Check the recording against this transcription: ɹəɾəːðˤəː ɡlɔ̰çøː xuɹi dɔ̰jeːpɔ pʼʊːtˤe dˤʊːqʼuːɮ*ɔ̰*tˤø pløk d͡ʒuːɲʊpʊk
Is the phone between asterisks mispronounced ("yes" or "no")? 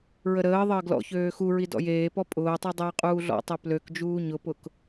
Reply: no